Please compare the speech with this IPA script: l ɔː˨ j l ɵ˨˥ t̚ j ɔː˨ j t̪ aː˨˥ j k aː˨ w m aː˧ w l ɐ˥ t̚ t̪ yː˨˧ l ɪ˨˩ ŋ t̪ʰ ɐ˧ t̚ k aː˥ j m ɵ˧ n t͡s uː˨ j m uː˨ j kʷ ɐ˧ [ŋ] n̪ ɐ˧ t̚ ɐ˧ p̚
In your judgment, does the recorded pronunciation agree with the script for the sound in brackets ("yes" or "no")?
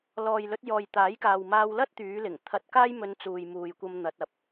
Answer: no